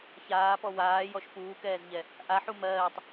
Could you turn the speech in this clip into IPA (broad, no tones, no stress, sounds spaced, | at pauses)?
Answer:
ç aː p ɔ w aː j ɔ ʃ p uː k ɛː z ʎ ɛ | ʔ a ħ u m ɜː tˤ